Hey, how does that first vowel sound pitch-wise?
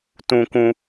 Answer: high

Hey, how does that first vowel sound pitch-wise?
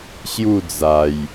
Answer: falling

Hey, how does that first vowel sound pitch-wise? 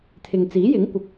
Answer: low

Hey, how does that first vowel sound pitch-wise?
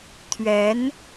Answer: rising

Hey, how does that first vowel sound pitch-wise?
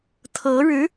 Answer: rising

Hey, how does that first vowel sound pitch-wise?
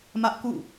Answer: high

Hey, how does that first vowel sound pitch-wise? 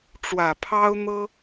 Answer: low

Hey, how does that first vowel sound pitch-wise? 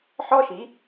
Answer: high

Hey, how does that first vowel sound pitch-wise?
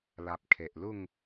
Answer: low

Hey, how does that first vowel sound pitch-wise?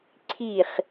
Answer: falling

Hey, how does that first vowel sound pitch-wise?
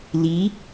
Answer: rising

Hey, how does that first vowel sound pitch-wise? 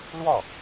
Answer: falling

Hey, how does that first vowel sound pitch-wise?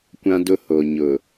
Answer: high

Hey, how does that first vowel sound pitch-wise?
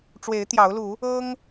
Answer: rising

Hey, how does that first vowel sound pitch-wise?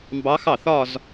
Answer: rising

